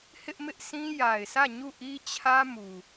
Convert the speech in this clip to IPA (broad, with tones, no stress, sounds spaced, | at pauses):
h ɪ˦ ʔ m ɪ˦ ʔ s ĩ˦ j a˨ ɪ̯ s ä˦˨ ɲ u˦˨ ʔ i˦ t͡ɕʰ ä˦ m u˨